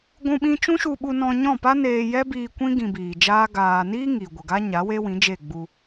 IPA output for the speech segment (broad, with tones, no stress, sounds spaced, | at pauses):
ɡʷ ũ˦ ɓ ĩ˦ t͡ʃ ũ˦ ʃ u˧ ɓ u˧ n ɔ̃˧ ɲ ɔ̃˦˨ p a˦ n eː˧ j ɛ˦ b iː˧ kʷ ĩ˦ ɡ ĩ˧ b iː˨ d͡ʒ aː˦ ɡ aː˨ n iː˦ ŋ i˨ ɡʷ ə˨ ɡ a˦ ɲ a˨˦ w e˦ w ĩ˨˦ d͡ʒ e˦˨ ɡ͡b u˧